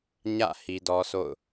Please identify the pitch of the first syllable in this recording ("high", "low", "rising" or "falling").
falling